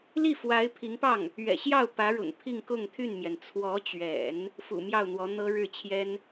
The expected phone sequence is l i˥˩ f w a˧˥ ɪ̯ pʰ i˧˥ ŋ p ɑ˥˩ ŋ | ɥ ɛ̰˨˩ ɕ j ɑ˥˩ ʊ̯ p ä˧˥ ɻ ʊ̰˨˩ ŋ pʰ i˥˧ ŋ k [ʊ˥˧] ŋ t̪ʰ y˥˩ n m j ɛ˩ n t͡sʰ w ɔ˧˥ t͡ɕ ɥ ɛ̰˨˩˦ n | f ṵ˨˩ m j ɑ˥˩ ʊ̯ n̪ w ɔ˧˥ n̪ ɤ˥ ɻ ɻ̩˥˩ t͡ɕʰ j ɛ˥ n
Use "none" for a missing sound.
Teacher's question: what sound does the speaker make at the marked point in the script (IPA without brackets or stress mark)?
ʊ˥˧